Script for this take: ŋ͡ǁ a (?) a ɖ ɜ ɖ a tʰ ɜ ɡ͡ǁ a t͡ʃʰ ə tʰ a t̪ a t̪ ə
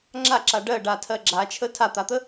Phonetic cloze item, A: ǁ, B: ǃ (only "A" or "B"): A